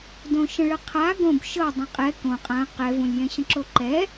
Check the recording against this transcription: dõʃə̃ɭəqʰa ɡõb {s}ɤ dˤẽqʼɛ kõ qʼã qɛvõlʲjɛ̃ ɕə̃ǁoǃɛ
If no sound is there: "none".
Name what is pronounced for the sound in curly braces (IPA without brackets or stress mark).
ʃ